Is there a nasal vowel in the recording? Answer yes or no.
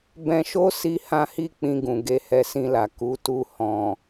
yes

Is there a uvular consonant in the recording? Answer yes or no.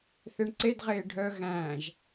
yes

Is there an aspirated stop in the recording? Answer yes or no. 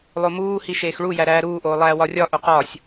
no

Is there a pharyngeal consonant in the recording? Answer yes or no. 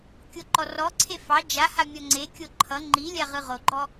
no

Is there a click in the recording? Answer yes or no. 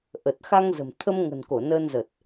no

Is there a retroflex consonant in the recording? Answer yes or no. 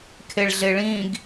yes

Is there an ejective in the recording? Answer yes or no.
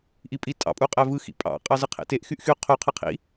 yes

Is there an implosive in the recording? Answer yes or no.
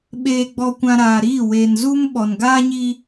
yes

